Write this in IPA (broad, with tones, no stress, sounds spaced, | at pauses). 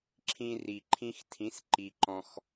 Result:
ǁʰ ĩ˧ r i˩ ǃʰ ĩ˧ x tʰ ĩ˩˥ s ǃ i˩ ǃ ɔ̃˩ x